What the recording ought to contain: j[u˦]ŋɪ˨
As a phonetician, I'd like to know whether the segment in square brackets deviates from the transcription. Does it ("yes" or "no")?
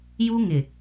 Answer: no